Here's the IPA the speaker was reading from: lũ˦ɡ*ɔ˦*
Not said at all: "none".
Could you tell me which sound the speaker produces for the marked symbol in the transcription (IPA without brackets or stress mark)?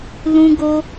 o˦